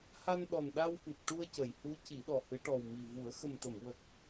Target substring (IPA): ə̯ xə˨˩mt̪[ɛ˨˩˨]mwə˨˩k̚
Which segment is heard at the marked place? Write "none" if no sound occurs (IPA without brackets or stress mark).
ə˨˩˨